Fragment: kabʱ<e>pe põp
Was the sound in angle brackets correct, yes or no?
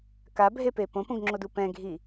yes